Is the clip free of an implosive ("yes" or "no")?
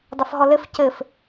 yes